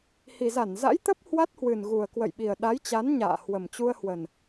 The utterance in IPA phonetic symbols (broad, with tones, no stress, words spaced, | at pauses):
hi˨˩za˧˩nza̰˧˥jt̪ə˦˥p̚ hwa˦˥t̚hwɨ˨˩nɣu˨˩ə̯ kwə̰˧˨jɓi˨˩ə̯ɗa˨˦jt͡ɕa˨˦n ɲa̰ː˧˨ hwə˨˩mt͡ɕu˧ə̯hwə˨˩n